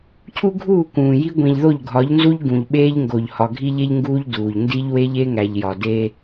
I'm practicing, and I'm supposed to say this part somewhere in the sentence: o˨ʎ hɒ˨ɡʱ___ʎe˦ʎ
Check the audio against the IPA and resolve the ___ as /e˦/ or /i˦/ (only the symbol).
i˦